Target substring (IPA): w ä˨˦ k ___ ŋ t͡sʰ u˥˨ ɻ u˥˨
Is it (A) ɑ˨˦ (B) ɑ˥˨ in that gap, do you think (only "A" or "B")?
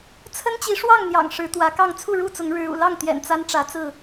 B